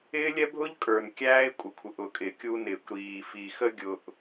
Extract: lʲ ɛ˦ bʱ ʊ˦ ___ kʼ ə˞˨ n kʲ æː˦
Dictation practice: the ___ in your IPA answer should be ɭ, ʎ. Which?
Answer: ʎ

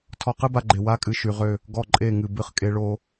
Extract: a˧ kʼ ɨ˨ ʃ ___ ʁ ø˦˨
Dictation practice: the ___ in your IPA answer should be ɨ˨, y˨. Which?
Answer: y˨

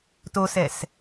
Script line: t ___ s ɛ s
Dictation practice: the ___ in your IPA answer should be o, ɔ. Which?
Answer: o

